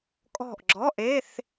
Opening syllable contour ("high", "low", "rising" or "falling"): falling